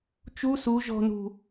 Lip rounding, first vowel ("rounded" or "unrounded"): rounded